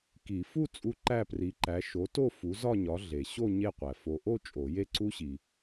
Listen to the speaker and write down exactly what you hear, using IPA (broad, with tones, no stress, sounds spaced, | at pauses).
k i˨˩˦ f u˥˧ t͡sʼ u˦˥ ǃ æ˥˧ p r i˨˥ ǃ æ˨˥ ʃ o˨˥ t o˥˧ f u˨˥ z ɒ˥˧ ɲ ɒ˨˥ ɮ e˨ ɕ o˥˧ ɲ e˥˧ qʷ æ˨ f o˨ ʔ o˥˧ t͡ʃʼ o˨˩˦ j e˥˧ ǀ u˦˥ ɕ i˨